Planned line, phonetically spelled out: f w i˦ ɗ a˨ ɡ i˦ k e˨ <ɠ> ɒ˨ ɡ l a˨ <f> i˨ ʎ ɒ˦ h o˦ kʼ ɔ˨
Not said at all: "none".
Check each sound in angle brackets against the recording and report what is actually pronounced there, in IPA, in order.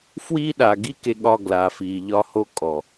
ɠ, f

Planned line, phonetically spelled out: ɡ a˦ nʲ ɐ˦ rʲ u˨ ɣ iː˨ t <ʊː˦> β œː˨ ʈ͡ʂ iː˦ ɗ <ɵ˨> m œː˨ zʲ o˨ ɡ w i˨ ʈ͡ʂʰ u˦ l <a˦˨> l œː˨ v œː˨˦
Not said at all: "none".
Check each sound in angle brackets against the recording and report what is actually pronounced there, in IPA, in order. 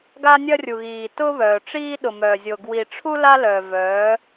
ʊː˦, ʊ˨, a˦

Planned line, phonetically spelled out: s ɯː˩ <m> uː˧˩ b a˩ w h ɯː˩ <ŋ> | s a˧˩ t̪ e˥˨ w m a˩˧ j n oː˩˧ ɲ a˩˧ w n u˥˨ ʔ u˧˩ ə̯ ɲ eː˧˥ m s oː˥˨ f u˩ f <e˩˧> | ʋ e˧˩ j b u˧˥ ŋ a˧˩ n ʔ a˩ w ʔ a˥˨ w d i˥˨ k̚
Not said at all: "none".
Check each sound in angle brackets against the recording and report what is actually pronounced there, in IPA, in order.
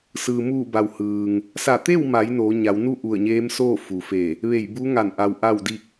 m, ŋ, e˧˩

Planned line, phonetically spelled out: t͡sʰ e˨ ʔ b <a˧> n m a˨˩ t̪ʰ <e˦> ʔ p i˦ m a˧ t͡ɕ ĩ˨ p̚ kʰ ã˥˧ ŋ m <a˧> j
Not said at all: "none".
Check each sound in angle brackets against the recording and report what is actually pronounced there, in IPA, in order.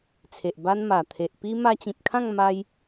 a˦, e˨, a˧

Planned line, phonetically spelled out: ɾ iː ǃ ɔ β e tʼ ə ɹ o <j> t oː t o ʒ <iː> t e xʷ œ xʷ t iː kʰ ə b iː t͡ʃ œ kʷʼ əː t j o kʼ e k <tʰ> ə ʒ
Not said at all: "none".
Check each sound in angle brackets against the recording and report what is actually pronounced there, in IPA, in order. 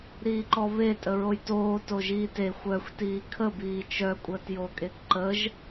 j, iː, ǃ

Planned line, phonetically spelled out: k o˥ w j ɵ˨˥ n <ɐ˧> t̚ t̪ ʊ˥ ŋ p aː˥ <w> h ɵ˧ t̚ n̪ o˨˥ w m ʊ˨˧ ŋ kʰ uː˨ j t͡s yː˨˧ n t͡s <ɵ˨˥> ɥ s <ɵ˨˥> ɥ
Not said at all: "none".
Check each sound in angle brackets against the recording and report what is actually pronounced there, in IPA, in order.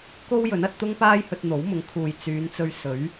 ɐ˧, j, ɵ˧, ɵ˨˥

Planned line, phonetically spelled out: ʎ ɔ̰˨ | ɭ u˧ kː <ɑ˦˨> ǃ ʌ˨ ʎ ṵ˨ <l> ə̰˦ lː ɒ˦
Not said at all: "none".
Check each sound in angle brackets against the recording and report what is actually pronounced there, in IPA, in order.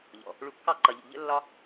ɑ˦˨, ʎ

